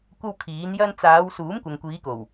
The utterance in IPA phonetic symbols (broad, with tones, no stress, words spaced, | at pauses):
kʷɐ˥wkʰiː˨˥n jɐ˧nt͡saː˨˧w suː˨˥mkʷɐ˨ŋkʷiː˨˧ko˨˩w